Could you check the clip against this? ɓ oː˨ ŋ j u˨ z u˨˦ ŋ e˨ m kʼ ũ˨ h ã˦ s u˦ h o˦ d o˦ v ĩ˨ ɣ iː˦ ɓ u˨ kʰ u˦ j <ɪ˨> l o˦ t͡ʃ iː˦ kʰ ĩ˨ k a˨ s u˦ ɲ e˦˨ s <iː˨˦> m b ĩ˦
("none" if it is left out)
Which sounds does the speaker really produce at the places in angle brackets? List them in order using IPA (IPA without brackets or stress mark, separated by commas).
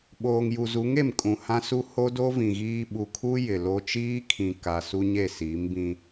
ɪ˨, iː˨˦